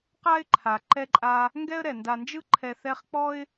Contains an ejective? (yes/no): yes